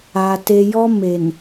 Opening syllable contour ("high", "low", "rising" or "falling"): low